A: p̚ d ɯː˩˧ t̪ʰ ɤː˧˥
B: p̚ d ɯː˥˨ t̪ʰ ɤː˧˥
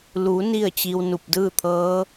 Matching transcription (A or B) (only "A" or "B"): B